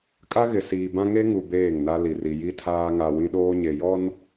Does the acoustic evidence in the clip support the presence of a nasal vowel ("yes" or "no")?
yes